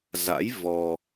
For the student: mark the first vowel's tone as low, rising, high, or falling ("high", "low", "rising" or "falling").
rising